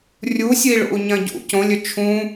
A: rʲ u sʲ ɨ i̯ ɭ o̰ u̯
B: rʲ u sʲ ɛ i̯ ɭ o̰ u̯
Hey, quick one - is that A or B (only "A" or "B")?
A